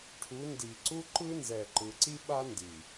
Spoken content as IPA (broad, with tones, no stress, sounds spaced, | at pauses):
ʈʰ u˨˦ n d i˨ ǀ u˦ ǃ ɯ˦ n z ɛ˨ ǃ ɯ˨ ǀ i˦ ɓ a˦ n d i˨